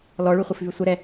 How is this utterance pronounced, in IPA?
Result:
lɔɭyχʷɘfvy sʷəɾɛ

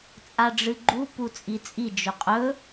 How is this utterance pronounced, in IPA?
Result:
t͡sʼaɖ͡ʐɨɡ͡ǃu put͡sʼit͡sʼi d͡ʒɵqʼɵ

